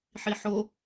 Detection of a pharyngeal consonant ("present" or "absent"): present